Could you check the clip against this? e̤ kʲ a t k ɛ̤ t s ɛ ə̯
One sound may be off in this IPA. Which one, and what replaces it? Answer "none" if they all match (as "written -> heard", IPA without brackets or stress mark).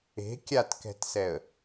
none